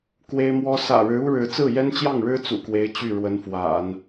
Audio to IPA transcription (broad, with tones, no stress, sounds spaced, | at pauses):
k w e˥ ɪ̯ m w ɔ˥ s ä̰˨˩ ɻ ɻ̩˧˥ u˥ ɻ ɻ̩˧˥ t͡s ɹ̩˥˩ j ɛ˥ n t͡ɕ j ɑ˥˩ ŋ ɻ ɻ̩˥ t͡s ṵ˨˩ k w e˧˥ ɪ̯ t͡ɕ y˥˩ ɻ w ə˧˥ n f w a̰˨˩˦ n